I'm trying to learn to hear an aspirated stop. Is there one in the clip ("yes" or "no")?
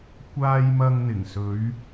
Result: no